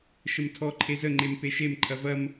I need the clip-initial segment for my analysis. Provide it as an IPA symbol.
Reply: ʃ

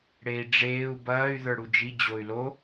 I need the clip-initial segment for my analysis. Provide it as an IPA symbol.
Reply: ɽ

